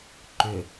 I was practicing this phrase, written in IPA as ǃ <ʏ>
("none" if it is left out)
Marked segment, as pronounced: ʏ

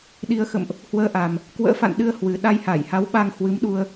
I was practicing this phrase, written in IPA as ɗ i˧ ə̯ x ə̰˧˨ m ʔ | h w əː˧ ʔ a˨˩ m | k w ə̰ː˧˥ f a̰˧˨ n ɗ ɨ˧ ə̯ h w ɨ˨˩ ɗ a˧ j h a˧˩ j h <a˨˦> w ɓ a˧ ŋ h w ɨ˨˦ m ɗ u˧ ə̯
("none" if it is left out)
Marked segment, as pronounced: a˨˦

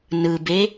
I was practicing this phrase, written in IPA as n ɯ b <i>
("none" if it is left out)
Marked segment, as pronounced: e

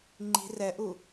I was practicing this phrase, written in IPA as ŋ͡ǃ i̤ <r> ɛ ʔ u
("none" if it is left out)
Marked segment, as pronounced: r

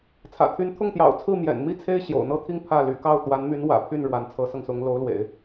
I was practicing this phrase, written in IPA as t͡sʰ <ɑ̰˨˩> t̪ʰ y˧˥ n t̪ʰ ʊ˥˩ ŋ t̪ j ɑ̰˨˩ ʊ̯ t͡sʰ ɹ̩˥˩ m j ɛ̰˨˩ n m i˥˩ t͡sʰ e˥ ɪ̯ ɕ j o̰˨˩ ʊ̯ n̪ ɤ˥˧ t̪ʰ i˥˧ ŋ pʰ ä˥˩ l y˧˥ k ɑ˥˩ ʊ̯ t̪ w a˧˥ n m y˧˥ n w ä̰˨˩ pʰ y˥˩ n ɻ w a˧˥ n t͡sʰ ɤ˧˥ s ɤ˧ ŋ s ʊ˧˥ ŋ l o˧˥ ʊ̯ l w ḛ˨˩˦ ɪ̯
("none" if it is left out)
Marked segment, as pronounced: ä̰˨˩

